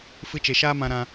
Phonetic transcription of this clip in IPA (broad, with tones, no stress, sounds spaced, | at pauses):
f ɨ˧ t͡ʃ e˨ ʃ aː˦ m ã˧ ɾ ã˧